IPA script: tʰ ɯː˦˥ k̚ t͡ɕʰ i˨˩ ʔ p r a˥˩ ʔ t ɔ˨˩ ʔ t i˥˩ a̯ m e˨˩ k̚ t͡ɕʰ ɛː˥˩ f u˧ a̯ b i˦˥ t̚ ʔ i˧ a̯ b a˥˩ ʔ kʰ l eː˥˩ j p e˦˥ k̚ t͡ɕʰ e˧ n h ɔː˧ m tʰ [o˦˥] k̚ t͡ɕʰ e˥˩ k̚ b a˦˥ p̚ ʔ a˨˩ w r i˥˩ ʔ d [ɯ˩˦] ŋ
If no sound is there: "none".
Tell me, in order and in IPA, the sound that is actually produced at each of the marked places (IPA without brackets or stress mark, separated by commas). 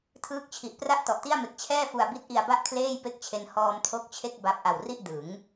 o˦˥, ɯ˩˦